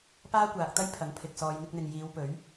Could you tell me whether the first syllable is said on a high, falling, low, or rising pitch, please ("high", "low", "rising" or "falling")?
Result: high